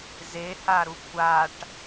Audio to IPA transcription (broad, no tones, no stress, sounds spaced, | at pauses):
z e h a ɾ u kʷʰ a ʈ